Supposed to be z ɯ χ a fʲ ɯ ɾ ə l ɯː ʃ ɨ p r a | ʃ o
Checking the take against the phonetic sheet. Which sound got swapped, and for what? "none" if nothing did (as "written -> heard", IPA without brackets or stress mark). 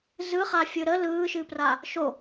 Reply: none